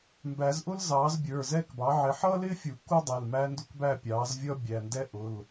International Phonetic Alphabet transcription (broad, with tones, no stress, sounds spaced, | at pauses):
m b æ˨˩˦ z ʔ ʊ˥ l z ɑː˩˥ z bʲ ə˞˩˧˩ z ɛ˥˨ k b ɑ˩˥ ʕ ɪ˩˥ ħ ʌː˥ l ɪː˥ fʲ u˨˩˦ k u˥ dˤ ɛ˩˧˩ l m æ˥ n d ʊ˥ k b æ˥˨ pʲ ɑː˩˥ z vʲ ʌ˥ bʲ æ˩˧˩ n d ɛ˥ ʔ ʊ˩˧˩ l